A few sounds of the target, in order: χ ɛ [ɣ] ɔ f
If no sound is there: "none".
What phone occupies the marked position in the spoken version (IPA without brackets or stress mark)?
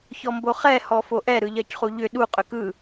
h